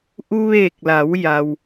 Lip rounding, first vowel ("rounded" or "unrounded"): rounded